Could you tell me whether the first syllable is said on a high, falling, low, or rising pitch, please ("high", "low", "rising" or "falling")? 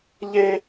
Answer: high